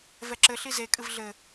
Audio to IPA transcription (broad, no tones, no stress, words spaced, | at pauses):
vɛǁɘ ɬize kʼɨvɮɘ